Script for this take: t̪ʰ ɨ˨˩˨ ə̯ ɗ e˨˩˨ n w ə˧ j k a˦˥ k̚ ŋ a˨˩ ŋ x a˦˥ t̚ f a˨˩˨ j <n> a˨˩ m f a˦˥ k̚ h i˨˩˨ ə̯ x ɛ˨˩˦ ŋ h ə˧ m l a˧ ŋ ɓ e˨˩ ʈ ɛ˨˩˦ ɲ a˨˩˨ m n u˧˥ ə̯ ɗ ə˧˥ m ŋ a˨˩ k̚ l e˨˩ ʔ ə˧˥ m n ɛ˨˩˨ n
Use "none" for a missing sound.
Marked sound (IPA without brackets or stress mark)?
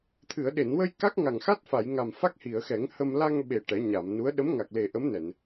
ŋ